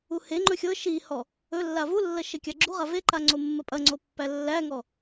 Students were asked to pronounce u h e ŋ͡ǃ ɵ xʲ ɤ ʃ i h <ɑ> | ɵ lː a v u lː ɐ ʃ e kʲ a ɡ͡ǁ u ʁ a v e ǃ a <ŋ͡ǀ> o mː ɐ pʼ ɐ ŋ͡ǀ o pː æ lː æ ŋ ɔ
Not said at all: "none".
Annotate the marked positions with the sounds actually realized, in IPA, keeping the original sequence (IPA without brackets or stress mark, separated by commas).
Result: ɔ, ŋ͡ǀ